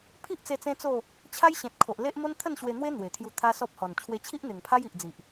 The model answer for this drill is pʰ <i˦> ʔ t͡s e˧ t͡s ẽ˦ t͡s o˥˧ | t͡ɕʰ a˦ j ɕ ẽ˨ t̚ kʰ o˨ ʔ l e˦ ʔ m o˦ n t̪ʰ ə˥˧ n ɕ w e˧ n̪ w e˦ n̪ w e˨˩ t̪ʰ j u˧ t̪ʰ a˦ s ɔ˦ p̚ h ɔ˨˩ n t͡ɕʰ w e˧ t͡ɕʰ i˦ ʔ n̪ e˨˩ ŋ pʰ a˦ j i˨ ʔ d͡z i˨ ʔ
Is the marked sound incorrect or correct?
correct